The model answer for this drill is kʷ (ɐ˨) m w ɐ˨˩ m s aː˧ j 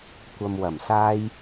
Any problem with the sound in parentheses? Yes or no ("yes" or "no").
no